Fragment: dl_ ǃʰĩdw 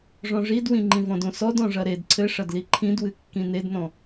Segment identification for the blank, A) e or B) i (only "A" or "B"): B